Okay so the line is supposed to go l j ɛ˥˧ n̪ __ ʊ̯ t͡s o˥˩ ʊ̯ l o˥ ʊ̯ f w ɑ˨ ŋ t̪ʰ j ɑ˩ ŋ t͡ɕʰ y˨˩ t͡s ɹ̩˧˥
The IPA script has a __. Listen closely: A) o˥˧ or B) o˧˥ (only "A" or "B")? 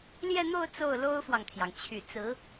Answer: A